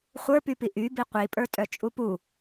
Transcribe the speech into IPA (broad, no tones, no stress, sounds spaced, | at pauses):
χʷ ə˞ p y p i ʔ y b i qʷ i pʼ ə˞ tʼ œ t͡ʃʼ u p u